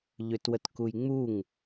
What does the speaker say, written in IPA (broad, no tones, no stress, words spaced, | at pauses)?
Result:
ʎʏtwət kujŋ͡muŋ